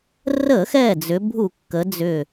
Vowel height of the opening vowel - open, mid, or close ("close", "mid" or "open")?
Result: mid